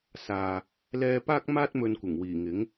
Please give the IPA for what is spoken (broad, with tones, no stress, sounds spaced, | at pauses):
s aː˨ | l ɛː˧ p aː˥ k̚ m aː˥ t̚ m ɵ˧ n kʷ ɪ˨˩ ŋ w iː˨˩ ŋ ɪ˨˥ ŋ